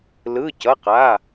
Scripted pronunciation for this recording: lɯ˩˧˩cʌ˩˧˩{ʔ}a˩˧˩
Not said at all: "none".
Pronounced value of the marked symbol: q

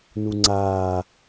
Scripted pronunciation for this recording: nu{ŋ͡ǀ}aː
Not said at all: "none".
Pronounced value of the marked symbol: ŋ͡ǀ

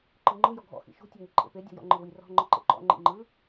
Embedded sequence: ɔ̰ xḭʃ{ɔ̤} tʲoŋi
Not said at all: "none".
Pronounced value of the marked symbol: o̤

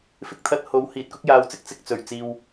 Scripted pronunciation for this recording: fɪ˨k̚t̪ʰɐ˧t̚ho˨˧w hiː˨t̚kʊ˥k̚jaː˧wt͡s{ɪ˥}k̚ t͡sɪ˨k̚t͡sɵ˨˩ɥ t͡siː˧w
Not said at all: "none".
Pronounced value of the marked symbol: ɪ˥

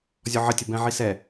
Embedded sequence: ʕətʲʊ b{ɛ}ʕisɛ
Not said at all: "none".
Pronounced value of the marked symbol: ɛ̃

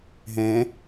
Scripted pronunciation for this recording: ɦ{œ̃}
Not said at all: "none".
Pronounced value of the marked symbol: ɛ̃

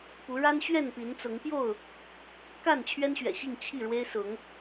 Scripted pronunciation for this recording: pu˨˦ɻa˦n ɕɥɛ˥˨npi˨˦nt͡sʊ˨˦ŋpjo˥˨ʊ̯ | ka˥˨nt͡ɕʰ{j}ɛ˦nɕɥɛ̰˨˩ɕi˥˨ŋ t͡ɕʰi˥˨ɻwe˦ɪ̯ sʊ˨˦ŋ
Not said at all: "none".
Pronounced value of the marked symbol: ɥ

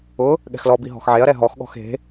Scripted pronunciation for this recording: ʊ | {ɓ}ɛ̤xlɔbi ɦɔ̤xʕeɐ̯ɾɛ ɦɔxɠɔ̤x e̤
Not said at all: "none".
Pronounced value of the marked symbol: ɠ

